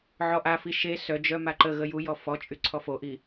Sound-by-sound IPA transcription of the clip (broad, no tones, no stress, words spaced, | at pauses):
ʕɔʔafi ʃe sœd͡ʒœ maǃəɣə jujɔ fɔt͡ʃʼy ǀʰɔfoʔi